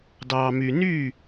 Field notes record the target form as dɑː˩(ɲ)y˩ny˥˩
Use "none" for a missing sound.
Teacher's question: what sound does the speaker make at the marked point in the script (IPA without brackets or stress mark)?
m